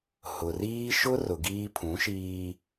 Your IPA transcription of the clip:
h ʊ˨ r iː˦ ʃ ʊ˦ r ʊ˨ ɡ iː˦ pʰ ũ˨˦ ʃ iː˦

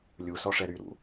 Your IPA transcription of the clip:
lʲ u s ɔ ʂ ɛ ɾ y ɾ ṵ

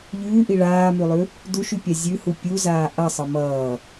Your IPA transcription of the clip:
ʎ ʉː ʔ i ɭ aː m ʉ lˠ ʉ | d u ʃ ʉ pʲ a zʲ ʉ h u pʲ u z aː ʔ ʌ sˤ ʌ m ʌː

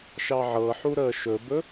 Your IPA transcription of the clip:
ʃ ɑ ʕ ɤ ħ u ɾ əː ʃ ɵ b ɵ

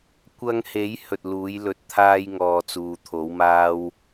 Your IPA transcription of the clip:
kʷ ɐ˧ ŋ h e˨˥ j h ɵ˨ t̚ l uː˨˥ j l ɵ˨ t̚ t̪ʰ aː˥ j ŋ ɔː˧ t͡s uː˨ t̪ʰ o˨˥ w m aː˥ w

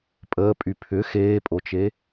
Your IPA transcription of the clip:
pʼ əː pʼ y pʰ ʏ x eː pʼ o t͡ʃ e

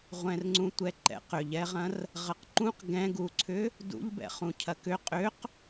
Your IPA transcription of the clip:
ʁʷ ɛ̃ r ŋ͡ǀ ũ tʷ ɛ ǃ ɛ̰ q ʏ ʎ ɛ ʁ ɐ̃ r | ʁ ɐ q ǃ ũ q ɡ ɛ̃ ɡ u ǀʰ ʏ | d ṵ ʎ b ɛ̰ χ ũ cʰ ɐ k ʏ qʼ ʏ q

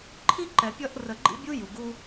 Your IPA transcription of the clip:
ǃʰ i˥ ǃ ɛ˨ pʲ ʌ˦ ʔ r ə˨ ɡ͡ǃ ḭ˦ bʲ u˦ j u˩ ɡ u˦

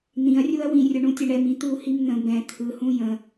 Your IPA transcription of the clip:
n̪ ĩ ɐ̯ rʲ u ɐ̯ w ĩ rʲ ʊ ɳ ũ tʲ ɛ ɳ ɛ m ĩ t̪ u h i m n̪ ə̃ b ɛ̃ t̪ʰ ɯ h ũ j ə̃

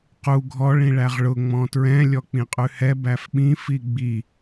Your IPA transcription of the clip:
q u ɡʱ ɔ ɭ ĩ ɭ æ ʁ ɭ ʊ ŋ͡m ɔ̃ t ɹ ɛ̃ lʲ ɔ k͡p ĩ qʼ ʉ h ɛ b æ f ɓ ĩ f i ɡ͡b i

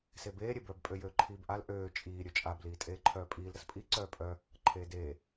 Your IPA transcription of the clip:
s e b eː ɾʲ e b œ b pʼ ø j øː ǃʰ iː b ʔ a l ʔ øː t͡ʃʼ iː ɾʲ ø t͡ʃʼ a b l iː tʼ eː ǃʰ œː pʼ iː l ɾ ə s pʼ i ǀ œː pʼ œ | ǃʰ eː d eː

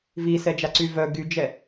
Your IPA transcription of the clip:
v i s ɛ d͡ʒ a ǀ y v œ ɡ y d͡ʒ ɛ

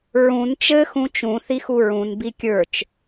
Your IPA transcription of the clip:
ɹ ũ n t͡ʃ ɘ x ũ t͡ʃ ũ θ i x u ɹ ũ n b i kʲ ə˞ t͡ʃ

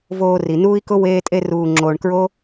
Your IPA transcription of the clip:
v oː˨ r i˩ n uː˥ i̯ k ʊ˥ w eː˦ tʼ e˦ r uː˨ ŋ͡ǁ oː˨ ɳ k ɹ o˥

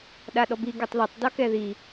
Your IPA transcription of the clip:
ɗ a ɗ ɔ b i ɡ a tˤ ð ɒ tˤ d ɒ k ɛ ð i

